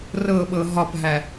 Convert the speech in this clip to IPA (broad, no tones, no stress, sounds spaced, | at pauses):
r ɤ ɓ ɤ ɦ ɒ p ɦ æ